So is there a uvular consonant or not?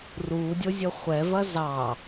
yes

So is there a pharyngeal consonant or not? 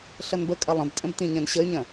no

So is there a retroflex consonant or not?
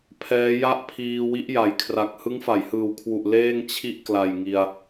no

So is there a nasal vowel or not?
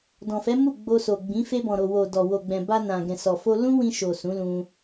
yes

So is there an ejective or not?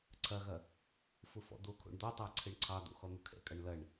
yes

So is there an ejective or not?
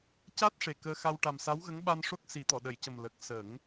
no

